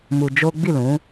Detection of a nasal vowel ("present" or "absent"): present